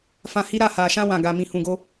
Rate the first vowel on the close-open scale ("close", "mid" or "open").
open